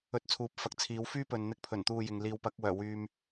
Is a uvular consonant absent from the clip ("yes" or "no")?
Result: yes